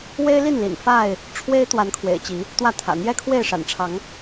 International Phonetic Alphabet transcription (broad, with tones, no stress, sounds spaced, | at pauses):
w e˦ ɪ̯ l i˥˨ n l ḭ˨˩ n f a˥˨ ɪ̯ | ʈ͡ʂʰ w e˦ ɪ̯ t̪ w a˨˦ n kʰ w ḛ˨˩ ɪ̯ t͡ɕ i˨˦ | t̪ w ä˥˨ t̪ʰ ä̰˨˩ n̪ j ɛ˦ kʰ w e˥˨ ɪ̯ ʂ a̰˨˩ n ʈ͡ʂʰ ɑ˨˦ ŋ